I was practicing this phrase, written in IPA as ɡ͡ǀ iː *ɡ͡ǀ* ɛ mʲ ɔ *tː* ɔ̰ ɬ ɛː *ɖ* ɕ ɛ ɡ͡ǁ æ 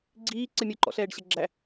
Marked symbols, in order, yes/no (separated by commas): no, no, yes